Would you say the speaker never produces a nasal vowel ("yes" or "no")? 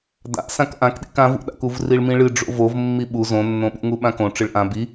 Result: no